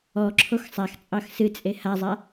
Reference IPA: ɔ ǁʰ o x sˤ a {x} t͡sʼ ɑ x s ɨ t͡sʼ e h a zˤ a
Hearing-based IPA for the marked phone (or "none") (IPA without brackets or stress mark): x